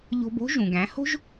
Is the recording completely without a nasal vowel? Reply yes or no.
no